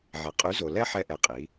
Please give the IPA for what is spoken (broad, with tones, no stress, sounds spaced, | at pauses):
ʕ ɛ˨ qʼ y˨˦ z o˨ l ɛ˦ ħ ɛ˦ ʔ ɛ˧ qʼ i˨˦